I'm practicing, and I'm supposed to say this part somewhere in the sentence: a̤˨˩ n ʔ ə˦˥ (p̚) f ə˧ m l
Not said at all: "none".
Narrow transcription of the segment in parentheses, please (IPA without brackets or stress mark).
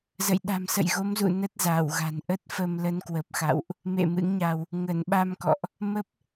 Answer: t̚